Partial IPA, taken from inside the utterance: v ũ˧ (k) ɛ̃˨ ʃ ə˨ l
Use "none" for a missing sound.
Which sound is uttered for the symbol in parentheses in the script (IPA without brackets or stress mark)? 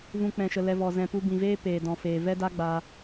k͡p